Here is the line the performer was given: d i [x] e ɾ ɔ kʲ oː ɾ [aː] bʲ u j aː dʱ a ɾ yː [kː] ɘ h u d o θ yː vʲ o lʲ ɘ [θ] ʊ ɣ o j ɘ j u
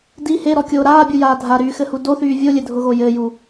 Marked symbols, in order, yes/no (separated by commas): no, yes, no, no